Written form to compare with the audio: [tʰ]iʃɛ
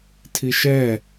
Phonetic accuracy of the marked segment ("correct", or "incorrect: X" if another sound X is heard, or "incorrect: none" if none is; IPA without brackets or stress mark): correct